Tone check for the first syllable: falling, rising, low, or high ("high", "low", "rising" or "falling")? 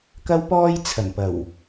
high